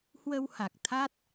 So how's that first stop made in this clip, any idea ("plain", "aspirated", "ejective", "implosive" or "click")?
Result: plain